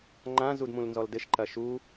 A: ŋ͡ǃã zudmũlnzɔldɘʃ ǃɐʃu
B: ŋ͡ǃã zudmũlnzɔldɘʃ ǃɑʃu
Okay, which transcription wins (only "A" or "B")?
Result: A